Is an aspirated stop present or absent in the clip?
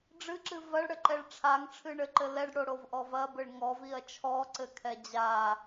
present